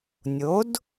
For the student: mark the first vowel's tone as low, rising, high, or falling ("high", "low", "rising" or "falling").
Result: rising